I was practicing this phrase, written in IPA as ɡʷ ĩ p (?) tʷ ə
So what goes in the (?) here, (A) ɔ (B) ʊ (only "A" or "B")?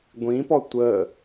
A